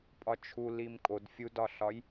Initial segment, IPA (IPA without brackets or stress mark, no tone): pʼ